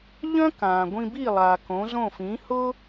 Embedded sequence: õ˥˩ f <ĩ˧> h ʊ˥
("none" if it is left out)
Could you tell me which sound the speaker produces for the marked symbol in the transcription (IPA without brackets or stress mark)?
ĩ˩˥